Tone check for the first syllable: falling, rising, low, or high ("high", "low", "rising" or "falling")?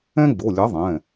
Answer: high